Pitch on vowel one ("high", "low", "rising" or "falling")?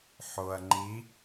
low